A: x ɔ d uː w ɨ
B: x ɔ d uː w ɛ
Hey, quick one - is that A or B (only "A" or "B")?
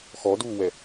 B